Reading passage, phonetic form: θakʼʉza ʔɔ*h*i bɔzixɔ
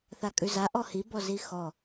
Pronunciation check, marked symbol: correct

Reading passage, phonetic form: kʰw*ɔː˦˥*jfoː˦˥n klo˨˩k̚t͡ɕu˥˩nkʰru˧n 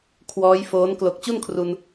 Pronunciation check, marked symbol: correct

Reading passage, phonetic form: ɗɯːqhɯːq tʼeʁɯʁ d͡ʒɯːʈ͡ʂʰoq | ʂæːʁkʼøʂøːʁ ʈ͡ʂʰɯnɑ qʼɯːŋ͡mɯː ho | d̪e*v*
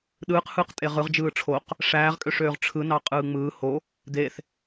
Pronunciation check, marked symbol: incorrect: θ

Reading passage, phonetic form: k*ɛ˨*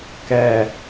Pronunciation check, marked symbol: correct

